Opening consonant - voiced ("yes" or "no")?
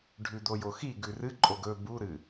yes